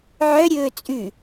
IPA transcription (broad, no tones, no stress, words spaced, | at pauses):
ʕœ ɾʲɵːt͡sʼʉ